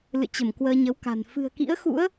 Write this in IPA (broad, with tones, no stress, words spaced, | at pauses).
lɨ̰˧˨t͡ɕə˧˩m kwəː˧ɲə˨˦wka̤˨˩n fɨ̤˨˩ə̯kḭ˧˥ə̯xṵ˧˥ə̯